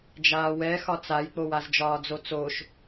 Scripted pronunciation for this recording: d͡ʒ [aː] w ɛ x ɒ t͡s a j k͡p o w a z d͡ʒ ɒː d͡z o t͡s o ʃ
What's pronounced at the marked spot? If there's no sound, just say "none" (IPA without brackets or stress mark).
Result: aː